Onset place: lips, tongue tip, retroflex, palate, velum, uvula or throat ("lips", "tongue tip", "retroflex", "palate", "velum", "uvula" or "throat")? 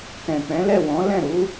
velum